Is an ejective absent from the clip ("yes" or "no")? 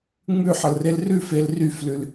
yes